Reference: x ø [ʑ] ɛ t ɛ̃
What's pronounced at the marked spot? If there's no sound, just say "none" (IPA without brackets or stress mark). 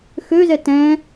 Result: z